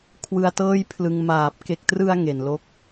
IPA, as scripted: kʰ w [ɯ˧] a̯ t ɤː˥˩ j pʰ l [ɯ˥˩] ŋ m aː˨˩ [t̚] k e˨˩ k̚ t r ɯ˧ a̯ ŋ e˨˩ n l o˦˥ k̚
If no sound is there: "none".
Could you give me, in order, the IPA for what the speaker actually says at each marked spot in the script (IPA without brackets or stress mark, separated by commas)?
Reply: ɯ˧, ɯ˧, p̚